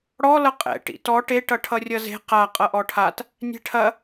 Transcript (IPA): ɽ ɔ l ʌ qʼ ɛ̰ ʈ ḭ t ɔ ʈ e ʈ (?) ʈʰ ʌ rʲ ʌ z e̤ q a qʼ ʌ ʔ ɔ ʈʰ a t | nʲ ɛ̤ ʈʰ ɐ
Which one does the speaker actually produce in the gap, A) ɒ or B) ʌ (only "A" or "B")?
B